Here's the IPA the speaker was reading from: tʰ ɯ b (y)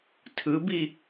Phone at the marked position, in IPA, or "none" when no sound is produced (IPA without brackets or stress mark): i